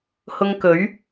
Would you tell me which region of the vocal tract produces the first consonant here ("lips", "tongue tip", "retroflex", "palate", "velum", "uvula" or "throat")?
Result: throat